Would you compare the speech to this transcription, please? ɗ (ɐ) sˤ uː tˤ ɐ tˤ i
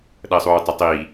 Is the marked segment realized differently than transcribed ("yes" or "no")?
no